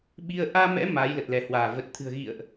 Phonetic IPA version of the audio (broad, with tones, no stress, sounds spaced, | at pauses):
ɓ i˧ ə̯ ʔ aː˧ m ɛ̰˧˥ m aː˨˦ j l ə˨˩ t̚ l ɛ˧˩ h w aː˧˩ v ə˨˩ t̚ t̪ʰ ɨ̤˨˩ ə̯ ɣ ḭ˧˨ ə̯ ʔ